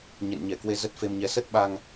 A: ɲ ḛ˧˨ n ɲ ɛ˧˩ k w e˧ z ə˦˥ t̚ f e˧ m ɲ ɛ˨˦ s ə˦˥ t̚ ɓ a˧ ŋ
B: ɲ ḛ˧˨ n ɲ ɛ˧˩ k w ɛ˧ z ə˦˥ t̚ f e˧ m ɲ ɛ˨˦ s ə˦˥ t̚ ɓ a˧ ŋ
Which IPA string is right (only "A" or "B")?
A